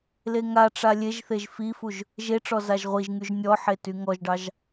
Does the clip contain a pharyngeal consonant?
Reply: yes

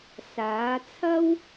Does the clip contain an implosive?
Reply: no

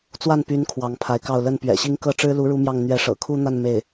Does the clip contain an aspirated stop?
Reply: yes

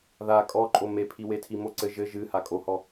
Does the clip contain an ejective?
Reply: yes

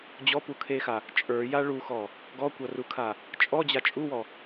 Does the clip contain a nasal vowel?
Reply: no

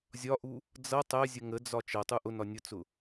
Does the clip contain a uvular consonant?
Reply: no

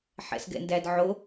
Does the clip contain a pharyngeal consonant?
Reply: yes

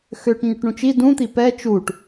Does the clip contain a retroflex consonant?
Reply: yes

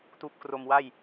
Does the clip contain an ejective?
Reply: no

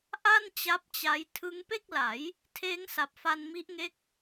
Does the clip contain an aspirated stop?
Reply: yes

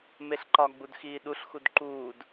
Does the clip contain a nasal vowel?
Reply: no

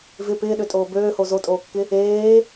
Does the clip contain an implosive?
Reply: yes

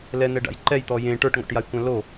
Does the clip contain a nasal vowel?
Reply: yes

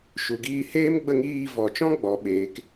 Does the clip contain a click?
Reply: no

